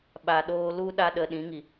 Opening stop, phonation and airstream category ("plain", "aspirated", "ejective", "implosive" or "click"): implosive